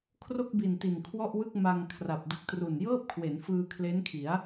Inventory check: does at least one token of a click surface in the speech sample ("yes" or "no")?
no